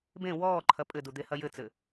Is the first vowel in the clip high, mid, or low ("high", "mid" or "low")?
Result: mid